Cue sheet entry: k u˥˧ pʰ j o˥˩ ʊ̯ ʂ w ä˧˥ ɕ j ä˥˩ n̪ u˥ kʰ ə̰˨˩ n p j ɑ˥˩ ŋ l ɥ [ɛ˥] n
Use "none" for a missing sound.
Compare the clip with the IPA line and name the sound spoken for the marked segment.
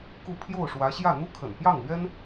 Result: ɛ˥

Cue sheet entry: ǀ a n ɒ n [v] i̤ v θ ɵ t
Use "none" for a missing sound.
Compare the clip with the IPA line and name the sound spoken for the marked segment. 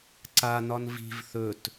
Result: v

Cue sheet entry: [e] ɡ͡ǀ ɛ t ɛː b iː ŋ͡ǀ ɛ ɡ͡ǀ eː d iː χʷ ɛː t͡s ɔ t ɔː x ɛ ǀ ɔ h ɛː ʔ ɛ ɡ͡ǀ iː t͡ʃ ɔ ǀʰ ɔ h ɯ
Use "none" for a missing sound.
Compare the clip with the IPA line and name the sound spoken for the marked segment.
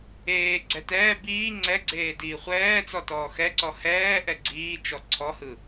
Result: eː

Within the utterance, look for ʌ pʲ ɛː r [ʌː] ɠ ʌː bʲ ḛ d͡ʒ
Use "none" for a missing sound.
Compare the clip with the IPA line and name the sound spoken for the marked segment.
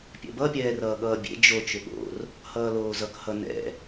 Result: ʌː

